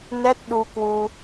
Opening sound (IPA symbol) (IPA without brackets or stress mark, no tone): n